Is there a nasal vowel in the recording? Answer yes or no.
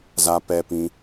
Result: yes